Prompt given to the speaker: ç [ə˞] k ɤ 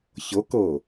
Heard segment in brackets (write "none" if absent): ɤ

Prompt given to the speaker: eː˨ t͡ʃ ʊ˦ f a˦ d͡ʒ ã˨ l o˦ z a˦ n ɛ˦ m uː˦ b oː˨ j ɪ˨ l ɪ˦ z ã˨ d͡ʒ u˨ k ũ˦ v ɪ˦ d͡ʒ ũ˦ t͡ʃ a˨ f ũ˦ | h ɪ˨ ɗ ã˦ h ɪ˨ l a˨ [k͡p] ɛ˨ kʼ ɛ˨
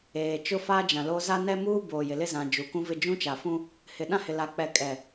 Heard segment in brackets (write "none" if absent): k͡p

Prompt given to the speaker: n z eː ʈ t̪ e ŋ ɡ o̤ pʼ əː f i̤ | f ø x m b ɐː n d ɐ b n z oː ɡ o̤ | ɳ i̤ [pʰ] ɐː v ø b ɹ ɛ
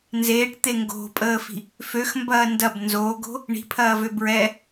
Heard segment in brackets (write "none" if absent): pʰ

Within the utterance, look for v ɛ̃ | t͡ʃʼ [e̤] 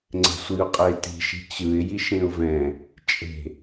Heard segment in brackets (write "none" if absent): e̤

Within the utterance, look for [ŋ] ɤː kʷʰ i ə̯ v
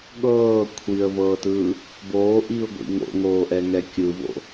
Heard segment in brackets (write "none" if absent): ɠ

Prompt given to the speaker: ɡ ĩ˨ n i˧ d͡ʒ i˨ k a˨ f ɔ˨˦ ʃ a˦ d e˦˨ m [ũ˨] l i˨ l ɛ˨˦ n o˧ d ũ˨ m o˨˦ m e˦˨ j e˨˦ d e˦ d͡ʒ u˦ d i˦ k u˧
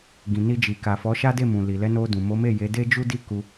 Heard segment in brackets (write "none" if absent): ũ˨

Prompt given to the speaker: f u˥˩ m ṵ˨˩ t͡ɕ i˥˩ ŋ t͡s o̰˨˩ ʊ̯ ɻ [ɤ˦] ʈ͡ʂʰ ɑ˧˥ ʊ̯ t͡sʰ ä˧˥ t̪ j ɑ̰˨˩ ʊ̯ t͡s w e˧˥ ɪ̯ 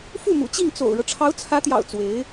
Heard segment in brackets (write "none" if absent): ɤ˦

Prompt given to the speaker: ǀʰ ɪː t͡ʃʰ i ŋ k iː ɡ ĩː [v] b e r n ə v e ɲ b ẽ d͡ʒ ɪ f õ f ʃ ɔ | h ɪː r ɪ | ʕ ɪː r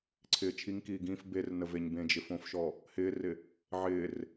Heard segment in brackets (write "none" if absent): f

